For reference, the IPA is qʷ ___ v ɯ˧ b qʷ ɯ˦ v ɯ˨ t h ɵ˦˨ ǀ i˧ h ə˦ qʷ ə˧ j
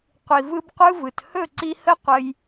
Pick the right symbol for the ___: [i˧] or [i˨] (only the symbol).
i˨